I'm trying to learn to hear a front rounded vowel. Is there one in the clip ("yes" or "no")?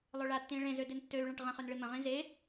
yes